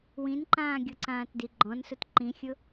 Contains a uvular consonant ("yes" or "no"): no